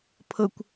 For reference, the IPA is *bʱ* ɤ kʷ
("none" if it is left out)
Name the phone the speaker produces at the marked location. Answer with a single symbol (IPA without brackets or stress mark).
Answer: pʰ